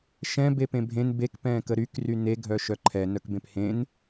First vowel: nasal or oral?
nasal